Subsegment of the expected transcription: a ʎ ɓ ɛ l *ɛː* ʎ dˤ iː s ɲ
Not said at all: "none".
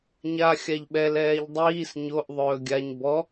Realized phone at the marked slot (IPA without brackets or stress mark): ɛː